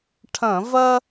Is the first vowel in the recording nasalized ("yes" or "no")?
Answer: yes